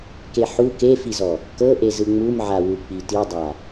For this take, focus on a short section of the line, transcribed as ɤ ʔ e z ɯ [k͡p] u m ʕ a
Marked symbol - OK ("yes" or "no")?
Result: no